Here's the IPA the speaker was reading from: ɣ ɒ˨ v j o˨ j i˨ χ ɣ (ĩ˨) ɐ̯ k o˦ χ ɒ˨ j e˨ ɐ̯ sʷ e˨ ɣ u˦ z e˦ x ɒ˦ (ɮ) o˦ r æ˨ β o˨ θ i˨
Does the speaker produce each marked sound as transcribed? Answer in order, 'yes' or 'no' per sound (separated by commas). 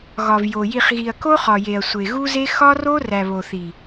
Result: no, no